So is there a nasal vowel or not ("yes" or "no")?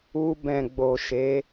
yes